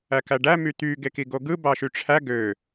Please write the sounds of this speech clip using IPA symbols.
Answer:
æ k æ ɖ æ m y t̪ y ɡ e k i ɡ o ɡ ɯ b ɑ ʃ y ʈ͡ʂʰ æ ɡ ø

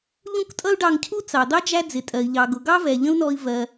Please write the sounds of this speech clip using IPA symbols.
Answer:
ʎ ũ˥ k tʼ ʌ˥ u̯ ɖ ɑ˧ ŋ cʰ u˥ t͡s ɑ˩ d̪ ɑ˥ d͡ʒ æ˥ d͡z ɪ˩ tʼ ɜ˩ i̯ ʎ ɑ˩ ɡ ʊ˩ ɡ ɑ˥ v ɛ˩ ʎ ə̃˥ u̯ n ɔ˧ i̯ v ɜ˩

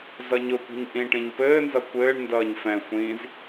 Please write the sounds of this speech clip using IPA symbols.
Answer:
z ʌ ɲ ʊ kʷ i̤ ɲ ʔ ĩ ʈ ĩ ɲ p ɘː n z ʌ kʷ ɘː ɳ n d ʌː ɲ f ɛ̃ xʷ ĩː z

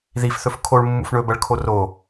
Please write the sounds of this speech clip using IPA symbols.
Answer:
ð i f θ ɵ f kʰ o ɭ mː ṵ f ɳ ɵ b ɐ ɭ kʰ o r o

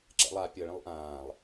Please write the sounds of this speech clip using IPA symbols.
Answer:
ǁ ɛ̰ lˠ a pʲ ɤ ɭ ẽ lˠ ʔ ãː lˠ

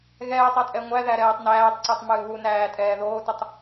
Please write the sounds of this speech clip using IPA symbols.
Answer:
ɣ ɛː tˤ a tʼ ɛ ŋʷ æ ð æ ɾ ɛː tˤ n æː tˤ ǀ ɛ tˤ m ɨː β u n æː tʼ ɛː ð oː t ɨ tˤ

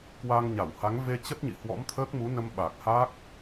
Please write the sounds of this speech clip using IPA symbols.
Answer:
k w a˧ ŋ ɲ a˧˩ w h a˨˦ ŋ v e˧ t͡ɕ ə˦˥ t̚ ɲ ḭ˧˨ h w ɔ̰˧˥ m t̪ʰ əː˦˥ k̚ m u˨˦ n ə˧ m ɓ a˨˩ k̚ h a˦˥ k̚

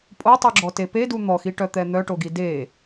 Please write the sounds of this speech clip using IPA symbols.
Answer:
pʼ o tˤ u ɡ͡ǁ ɔ t e p e d u n̪ ɔ x i ʈ œ t̪ ɛ n̪ œ ʈ o ɡ i d e

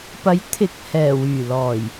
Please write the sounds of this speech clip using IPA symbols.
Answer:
p ɐ˨˥ j t̪ʰ ɪ˨˥ k̚ h ɛː˨˩ w yː˨˩ l ɔː˨˩ j

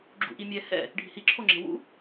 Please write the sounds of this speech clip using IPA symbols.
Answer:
ɡ͡ǁ ṵ ʔ i mʲ ɛ h ɛ̰ | ɖʱ i̤ h i ǁʰ o ŋ͡ǁ e̤ w ṵ

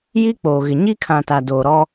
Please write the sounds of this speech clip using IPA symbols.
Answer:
j i˦ k͡p oː˨ ɣ ɪ˨ ɲ i˦ kʰ ã˨ t a˨ d oː˨ ɾ ɔ˦

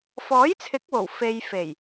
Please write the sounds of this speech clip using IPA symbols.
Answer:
f ɔː˨˥ j t͡sʰ ɪ˨˥ k̚ w o˨˩ w f e˨ j f e˨˩ j

